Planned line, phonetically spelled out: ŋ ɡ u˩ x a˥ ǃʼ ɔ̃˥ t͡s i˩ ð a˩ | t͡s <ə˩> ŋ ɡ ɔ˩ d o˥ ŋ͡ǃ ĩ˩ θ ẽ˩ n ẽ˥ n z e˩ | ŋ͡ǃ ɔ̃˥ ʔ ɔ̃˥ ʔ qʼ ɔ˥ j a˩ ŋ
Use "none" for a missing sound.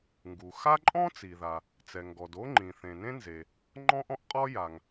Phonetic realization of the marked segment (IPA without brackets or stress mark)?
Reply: ɛ˩